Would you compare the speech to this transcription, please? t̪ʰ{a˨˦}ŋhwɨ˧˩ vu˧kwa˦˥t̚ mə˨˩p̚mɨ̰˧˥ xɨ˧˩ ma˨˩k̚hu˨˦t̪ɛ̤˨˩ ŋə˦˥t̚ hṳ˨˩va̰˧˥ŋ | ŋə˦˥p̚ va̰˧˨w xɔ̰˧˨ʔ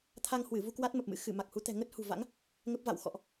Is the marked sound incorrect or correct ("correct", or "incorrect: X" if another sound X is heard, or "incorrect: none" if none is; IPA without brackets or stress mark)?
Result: incorrect: a˧